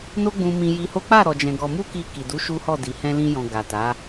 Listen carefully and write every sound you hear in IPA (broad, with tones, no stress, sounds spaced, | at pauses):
n o˦ ɡ͡b ũ˧ m ĩ˧ j i˧ h o˦ k͡p a˦˨ ɾ ɔ˨ d͡ʒ ɛ̃˨ ɡ ɔ˧ m u˦ k i˧ k i˨ d u˨˦ ʃ u˦ h ɔ˦˨ d i˨ h ɛ̃˧ l ĩ˧ j ɔ̃˨ ɡ a˨ t a˨˦